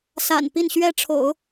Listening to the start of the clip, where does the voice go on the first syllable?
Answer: low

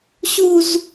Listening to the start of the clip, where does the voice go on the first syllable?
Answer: high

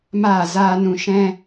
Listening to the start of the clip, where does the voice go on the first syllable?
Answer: falling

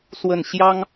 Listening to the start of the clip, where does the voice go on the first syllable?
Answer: falling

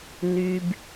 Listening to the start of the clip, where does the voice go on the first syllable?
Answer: high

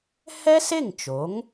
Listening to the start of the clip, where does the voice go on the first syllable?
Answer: high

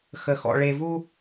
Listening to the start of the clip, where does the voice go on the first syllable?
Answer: low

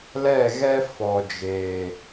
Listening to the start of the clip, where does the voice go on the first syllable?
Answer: falling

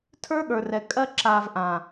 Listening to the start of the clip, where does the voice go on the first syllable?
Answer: high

